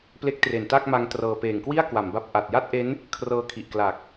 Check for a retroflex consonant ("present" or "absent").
absent